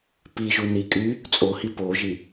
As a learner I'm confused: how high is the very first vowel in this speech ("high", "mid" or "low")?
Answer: high